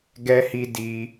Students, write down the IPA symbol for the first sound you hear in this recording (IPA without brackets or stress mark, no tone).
ɡ